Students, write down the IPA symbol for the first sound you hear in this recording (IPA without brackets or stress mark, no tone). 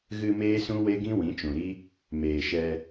ɣ